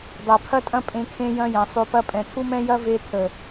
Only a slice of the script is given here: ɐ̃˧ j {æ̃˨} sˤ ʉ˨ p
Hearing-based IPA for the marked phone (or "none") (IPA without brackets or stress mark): ɐ̃˨